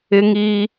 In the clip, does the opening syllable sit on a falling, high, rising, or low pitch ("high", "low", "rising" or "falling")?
high